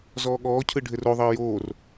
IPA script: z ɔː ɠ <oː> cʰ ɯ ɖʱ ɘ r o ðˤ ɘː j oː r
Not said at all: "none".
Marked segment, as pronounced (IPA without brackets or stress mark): ɔː